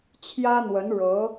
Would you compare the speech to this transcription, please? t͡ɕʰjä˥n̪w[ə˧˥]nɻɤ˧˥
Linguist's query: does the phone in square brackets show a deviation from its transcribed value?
no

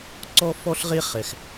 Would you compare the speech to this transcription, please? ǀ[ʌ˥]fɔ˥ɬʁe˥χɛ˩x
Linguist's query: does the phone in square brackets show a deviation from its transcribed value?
yes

